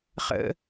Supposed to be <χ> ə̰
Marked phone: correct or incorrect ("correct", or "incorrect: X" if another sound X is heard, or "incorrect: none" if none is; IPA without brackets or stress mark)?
correct